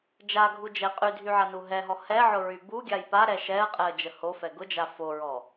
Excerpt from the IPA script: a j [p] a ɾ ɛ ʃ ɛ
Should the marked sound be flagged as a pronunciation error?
no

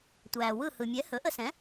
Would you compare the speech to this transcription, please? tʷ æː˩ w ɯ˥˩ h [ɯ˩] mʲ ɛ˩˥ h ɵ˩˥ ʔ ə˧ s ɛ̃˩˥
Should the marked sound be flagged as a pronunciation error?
no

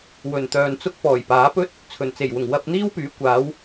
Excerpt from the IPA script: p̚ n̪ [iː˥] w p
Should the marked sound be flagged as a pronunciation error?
no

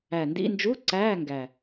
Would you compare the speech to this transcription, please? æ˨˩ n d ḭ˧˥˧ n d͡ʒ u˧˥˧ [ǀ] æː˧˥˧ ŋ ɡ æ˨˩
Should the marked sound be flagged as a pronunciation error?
no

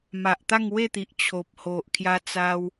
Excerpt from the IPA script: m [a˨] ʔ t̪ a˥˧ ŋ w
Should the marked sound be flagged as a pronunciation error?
no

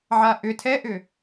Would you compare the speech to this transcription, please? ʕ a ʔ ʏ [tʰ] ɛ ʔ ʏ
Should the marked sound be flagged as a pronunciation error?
no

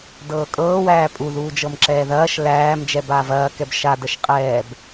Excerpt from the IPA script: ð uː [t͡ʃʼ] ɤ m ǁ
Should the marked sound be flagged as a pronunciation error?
yes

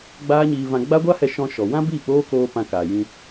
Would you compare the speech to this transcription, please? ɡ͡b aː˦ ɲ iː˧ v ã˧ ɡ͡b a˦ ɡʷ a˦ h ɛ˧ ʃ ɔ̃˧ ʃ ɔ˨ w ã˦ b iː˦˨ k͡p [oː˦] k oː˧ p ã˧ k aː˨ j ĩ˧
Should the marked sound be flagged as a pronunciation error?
no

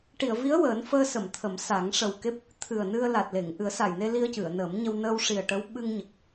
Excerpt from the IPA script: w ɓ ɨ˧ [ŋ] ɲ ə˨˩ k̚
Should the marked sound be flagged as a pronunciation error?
no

